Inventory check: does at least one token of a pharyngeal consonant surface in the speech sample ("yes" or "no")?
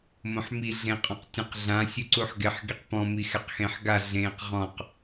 yes